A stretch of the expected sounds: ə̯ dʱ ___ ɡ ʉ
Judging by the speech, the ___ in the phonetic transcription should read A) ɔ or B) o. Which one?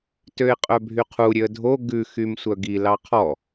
B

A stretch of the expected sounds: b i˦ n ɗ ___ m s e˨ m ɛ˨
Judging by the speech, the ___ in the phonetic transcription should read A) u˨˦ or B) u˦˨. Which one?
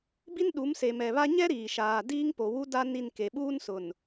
A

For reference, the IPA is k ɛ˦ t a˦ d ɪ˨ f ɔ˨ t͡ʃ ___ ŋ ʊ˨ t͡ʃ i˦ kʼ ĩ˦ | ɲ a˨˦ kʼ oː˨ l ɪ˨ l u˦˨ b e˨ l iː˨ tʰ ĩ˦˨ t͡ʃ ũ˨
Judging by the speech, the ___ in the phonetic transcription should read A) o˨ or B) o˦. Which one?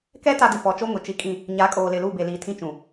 B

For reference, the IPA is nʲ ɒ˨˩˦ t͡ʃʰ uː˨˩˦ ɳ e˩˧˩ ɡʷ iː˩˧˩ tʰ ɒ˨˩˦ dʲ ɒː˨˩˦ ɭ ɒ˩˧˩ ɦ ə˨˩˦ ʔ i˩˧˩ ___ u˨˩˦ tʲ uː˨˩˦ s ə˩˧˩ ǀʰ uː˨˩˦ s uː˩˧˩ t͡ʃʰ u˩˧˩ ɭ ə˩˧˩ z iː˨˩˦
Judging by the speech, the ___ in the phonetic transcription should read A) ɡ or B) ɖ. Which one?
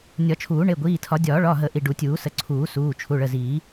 B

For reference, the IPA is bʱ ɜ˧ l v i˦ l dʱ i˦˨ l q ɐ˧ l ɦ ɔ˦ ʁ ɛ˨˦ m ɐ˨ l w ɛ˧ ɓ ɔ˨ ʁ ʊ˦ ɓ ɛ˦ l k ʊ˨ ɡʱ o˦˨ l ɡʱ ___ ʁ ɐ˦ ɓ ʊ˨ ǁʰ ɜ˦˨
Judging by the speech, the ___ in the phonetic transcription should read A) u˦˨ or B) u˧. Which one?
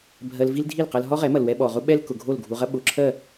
B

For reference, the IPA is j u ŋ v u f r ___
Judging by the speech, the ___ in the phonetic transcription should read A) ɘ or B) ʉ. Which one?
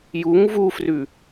B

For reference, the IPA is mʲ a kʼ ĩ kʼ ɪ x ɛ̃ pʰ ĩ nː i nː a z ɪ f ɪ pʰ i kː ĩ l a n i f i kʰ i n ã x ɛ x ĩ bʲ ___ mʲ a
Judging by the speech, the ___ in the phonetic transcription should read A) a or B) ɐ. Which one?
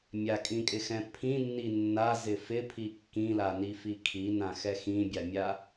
A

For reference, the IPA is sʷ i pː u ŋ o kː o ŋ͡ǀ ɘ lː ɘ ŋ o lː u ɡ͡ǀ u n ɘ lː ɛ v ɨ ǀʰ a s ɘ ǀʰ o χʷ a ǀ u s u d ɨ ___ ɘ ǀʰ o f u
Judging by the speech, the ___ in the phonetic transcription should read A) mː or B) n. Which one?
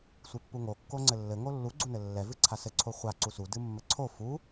A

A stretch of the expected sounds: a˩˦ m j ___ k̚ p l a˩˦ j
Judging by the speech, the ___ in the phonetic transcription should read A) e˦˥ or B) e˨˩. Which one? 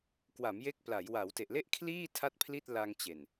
A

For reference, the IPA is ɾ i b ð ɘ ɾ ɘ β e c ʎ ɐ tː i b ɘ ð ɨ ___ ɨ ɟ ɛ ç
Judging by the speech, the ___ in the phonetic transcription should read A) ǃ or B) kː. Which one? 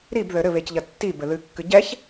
B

